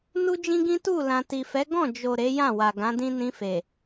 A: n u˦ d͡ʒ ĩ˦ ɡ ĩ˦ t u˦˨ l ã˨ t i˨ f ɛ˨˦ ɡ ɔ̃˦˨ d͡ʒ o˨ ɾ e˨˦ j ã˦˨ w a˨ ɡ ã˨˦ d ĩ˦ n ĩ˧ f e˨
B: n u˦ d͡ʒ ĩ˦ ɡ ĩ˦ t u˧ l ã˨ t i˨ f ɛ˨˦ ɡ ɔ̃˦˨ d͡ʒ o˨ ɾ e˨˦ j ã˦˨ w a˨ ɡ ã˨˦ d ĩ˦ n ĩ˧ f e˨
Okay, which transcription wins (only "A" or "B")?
A